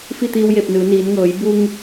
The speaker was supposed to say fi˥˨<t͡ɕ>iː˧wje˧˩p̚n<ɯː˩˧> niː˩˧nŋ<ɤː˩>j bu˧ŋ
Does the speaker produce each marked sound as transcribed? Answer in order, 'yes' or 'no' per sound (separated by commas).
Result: no, yes, no